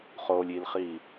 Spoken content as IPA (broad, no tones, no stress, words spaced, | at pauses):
χolʲilχi